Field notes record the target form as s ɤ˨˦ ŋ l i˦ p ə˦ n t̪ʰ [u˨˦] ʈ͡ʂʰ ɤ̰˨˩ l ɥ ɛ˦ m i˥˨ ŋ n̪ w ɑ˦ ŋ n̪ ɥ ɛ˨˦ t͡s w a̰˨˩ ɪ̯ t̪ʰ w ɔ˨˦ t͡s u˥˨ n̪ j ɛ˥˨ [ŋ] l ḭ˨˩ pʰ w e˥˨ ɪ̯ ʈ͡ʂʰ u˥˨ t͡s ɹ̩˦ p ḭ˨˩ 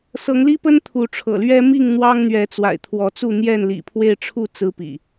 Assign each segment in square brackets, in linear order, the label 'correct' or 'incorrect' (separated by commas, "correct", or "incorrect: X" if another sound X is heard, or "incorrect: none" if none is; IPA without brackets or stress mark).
correct, incorrect: n